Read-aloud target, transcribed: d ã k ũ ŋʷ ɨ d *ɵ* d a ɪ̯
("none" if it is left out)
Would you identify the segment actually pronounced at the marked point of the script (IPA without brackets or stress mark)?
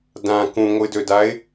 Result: ɵ